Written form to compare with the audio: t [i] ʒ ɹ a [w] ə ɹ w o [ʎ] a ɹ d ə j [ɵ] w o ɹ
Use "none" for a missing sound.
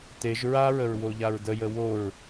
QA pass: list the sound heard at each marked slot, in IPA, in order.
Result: e, ɹ, ʎ, ə

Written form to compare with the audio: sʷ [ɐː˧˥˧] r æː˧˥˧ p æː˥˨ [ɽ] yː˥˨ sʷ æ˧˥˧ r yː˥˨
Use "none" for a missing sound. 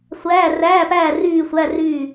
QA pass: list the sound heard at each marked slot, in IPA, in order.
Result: æː˧˥˧, r

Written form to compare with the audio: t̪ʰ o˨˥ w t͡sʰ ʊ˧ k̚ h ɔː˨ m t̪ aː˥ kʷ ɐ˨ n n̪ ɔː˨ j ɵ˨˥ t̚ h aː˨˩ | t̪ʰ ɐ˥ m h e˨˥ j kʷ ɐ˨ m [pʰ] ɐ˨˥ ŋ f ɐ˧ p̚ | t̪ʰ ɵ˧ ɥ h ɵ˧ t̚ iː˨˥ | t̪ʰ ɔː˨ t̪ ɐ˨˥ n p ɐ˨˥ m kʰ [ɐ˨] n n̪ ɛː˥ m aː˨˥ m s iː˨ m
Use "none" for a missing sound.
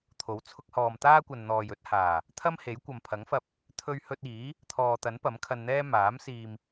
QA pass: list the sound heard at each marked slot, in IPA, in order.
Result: pʰ, ɐ˧

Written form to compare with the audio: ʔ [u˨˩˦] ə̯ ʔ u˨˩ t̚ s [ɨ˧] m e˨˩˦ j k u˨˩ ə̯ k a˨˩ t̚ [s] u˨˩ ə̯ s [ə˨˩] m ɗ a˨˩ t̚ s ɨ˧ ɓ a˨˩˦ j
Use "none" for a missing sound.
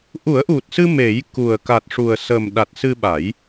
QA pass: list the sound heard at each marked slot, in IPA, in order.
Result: u˨˩˦, ɨ˧, ʂ, ə˨˩

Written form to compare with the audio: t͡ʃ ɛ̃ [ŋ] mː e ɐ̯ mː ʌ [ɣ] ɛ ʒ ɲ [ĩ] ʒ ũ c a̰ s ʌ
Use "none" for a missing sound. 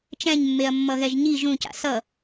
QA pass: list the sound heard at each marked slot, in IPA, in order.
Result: ɲ, ɣ, i

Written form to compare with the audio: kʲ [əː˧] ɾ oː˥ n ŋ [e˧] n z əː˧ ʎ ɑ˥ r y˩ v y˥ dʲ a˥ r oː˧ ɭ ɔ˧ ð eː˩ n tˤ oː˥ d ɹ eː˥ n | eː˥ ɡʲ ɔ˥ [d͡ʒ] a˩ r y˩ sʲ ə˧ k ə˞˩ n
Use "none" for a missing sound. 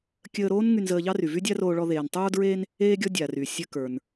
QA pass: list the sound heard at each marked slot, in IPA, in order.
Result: əː˧, y˧, dʲ

